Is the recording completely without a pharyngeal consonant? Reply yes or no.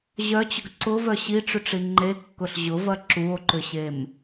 yes